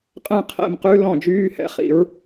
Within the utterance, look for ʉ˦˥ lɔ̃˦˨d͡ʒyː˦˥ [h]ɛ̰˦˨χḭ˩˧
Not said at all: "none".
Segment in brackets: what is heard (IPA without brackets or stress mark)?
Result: h